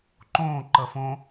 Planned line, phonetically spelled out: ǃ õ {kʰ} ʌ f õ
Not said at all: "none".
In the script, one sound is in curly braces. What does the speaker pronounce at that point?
ǃ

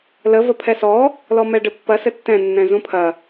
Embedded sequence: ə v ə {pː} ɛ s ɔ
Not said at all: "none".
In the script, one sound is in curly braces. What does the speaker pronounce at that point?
pʰ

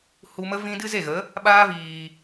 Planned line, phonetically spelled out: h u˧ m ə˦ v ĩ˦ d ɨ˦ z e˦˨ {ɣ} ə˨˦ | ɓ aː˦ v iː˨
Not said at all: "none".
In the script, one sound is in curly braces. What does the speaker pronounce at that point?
ɣ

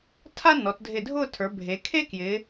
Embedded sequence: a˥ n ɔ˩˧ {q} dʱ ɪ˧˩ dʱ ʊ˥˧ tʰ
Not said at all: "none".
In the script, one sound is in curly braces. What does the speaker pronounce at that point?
t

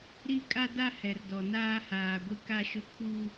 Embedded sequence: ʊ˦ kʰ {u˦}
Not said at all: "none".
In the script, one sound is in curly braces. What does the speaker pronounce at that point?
u˦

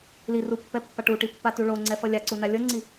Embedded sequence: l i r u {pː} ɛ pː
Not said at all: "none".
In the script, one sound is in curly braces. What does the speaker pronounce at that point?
pː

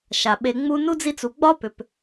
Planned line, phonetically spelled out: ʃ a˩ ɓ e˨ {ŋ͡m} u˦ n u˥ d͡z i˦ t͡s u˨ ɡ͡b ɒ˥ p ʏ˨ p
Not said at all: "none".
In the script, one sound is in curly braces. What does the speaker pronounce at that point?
ŋ͡m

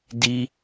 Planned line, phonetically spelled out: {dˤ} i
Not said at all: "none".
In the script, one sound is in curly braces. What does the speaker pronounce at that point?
d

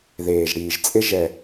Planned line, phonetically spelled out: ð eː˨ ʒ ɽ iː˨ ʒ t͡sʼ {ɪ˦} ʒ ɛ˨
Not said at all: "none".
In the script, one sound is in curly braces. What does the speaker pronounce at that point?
ɪ˦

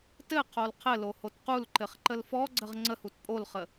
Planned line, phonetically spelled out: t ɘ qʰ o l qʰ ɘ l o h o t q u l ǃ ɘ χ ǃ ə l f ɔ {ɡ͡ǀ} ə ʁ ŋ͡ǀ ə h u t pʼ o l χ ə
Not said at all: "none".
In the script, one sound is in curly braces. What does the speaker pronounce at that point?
ɡ͡ǀ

